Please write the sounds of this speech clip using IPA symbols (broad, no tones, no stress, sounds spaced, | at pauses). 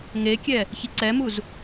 ŋ e kʲ ɛ | ç i ǀ ɛ m u z